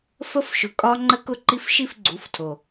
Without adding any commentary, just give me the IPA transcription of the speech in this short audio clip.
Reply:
f ə˦ f ʃ ʊ˨ kʼ ɒ˦ ŋ͡ǃ ə˦ k ʊ˦ ǃ i˦ f ʃ i˦˨ f ɡ͡ǀ u˨˦ f tʰ o˨

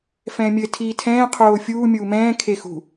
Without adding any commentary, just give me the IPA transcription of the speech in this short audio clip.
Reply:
f ɛ̃ː mʲ ɘ tʰ iː tʰ ɛ̃ː qʰ oː fʲ uː mʲ uː m ɛ̃ː kʰ e x ṳ

